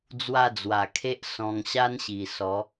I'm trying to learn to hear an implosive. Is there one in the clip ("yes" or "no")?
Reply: no